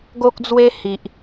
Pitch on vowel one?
high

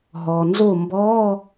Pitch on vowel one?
low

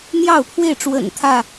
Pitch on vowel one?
falling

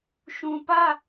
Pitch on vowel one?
low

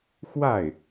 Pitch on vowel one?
falling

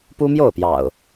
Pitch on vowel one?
high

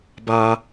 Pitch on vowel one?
high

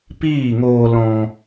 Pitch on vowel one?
falling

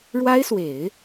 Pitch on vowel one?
high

